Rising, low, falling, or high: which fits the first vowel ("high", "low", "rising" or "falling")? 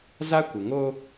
high